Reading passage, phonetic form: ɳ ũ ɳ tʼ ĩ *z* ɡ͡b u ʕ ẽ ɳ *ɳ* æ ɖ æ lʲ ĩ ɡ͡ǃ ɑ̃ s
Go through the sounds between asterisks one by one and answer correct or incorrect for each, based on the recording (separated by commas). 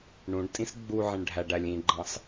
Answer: incorrect, incorrect